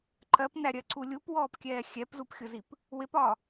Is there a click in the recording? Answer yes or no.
yes